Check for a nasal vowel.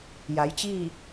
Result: absent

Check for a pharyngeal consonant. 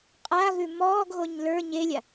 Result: absent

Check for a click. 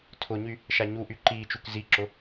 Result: present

